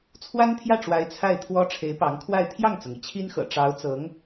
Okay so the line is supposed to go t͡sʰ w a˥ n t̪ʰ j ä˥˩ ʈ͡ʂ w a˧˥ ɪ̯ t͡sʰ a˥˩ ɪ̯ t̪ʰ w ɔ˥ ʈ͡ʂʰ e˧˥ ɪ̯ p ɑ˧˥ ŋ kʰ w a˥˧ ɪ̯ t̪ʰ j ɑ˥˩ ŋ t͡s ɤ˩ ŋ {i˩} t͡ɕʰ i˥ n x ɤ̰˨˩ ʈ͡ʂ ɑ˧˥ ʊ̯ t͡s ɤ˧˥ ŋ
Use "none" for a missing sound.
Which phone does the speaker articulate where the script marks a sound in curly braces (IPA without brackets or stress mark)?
i˩